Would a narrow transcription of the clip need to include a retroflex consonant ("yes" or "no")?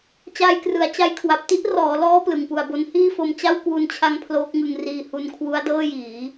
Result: no